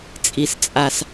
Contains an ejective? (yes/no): yes